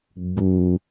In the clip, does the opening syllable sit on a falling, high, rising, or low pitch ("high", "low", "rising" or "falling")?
low